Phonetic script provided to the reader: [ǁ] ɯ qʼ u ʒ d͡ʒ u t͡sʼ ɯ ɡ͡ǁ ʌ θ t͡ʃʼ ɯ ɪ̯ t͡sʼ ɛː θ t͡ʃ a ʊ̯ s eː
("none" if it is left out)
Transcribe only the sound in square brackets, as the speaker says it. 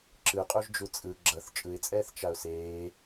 ǁ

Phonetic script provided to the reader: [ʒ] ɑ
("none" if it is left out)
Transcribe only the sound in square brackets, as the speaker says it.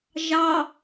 ʒ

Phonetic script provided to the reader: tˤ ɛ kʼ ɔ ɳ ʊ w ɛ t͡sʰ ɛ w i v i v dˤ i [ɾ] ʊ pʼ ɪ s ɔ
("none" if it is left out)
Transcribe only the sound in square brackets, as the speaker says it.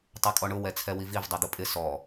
d̪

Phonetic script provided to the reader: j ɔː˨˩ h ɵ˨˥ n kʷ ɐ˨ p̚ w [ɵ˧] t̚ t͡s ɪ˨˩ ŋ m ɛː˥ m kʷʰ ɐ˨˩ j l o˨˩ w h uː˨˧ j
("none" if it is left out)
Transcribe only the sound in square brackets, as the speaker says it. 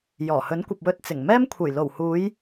ɵ˧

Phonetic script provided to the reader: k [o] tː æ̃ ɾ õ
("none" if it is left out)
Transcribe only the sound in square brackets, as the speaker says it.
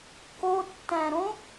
o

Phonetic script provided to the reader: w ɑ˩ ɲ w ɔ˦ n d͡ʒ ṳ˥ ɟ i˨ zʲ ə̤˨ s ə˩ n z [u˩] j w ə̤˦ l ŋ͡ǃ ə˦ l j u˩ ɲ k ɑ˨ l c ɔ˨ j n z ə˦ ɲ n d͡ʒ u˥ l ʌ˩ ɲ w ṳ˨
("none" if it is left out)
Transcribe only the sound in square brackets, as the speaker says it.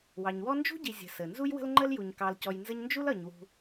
u˦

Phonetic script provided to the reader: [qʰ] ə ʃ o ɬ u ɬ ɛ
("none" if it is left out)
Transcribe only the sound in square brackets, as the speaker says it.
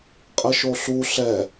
qʼ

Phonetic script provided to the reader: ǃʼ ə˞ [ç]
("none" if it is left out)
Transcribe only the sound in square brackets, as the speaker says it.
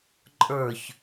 ç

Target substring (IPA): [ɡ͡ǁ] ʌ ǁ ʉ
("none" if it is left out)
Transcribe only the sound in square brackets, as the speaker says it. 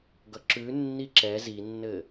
ɡ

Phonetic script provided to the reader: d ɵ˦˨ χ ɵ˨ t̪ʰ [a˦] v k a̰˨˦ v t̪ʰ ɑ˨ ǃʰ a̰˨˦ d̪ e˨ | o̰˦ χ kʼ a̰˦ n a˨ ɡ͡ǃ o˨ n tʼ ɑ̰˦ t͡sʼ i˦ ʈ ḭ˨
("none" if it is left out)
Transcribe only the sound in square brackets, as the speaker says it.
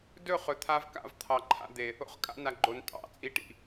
a˦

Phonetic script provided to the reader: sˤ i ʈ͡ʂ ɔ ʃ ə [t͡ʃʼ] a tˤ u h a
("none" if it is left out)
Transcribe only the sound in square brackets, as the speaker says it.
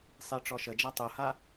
d͡ʒ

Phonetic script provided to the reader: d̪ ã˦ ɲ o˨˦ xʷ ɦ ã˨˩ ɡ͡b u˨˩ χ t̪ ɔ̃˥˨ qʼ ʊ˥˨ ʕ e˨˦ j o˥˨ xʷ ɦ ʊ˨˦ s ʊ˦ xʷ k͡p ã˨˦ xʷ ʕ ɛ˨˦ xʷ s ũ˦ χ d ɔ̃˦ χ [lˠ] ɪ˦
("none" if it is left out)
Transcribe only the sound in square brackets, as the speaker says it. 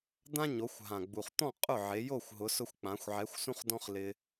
l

